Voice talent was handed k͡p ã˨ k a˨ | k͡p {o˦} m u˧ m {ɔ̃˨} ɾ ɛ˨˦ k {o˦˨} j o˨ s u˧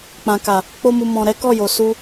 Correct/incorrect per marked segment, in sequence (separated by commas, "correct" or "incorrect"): correct, correct, incorrect